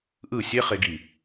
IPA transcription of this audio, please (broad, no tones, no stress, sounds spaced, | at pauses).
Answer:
ʔ ɯ sʲ e χ e ɡ i